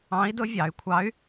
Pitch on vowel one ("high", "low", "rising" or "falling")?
rising